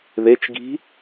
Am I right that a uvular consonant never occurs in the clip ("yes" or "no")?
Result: yes